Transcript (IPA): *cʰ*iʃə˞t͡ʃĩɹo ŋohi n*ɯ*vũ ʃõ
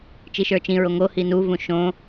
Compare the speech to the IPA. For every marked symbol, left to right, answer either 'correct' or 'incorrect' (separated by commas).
incorrect, incorrect